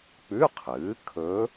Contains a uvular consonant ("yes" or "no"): yes